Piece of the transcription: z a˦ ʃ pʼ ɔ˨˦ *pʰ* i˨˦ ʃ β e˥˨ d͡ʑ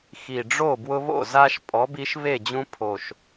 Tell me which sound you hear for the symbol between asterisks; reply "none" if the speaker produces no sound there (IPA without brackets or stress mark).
b